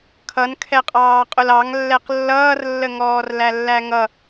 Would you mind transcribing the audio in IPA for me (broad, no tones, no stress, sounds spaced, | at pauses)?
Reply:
kʰ ʌ n kʰ ɛ qʼ ɑː qʼ ʊ l ɑ ŋ lː ɛ q lː ʌː r lː ə ŋ ɔː r l æ lː æ ŋ ʌ